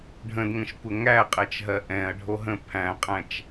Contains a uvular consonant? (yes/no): yes